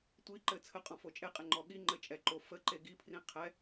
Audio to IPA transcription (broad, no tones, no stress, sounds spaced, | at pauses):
tʷ i ǃ ɘ t͡sʰ ə qʼ ɔ̃ f o t͡ʃʼ e qʼ e ŋ͡ǃ ɔ ɠ i ŋ͡ǃ ɘ t͡ʃʼ ɛ ǃ o f ə ǃ e ɡ i pʰ r ĩ qʰ ɛ